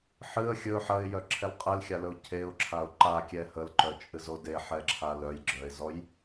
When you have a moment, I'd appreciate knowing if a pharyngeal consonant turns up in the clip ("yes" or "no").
yes